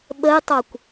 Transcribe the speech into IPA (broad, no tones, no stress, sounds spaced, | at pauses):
ɓ ə j tˤ o kʷ